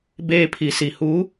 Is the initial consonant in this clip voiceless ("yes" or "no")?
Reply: no